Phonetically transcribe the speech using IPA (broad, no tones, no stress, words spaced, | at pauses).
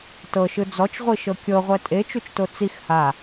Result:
tɤʃɯ d͡zɔt͡ʃʁʷiʃɤ kʲɤʁʷɛ tʼet͡ʃut͡ʃto t͡six ha